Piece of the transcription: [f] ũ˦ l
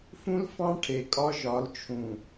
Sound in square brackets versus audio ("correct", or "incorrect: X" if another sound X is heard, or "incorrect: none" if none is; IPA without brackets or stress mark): correct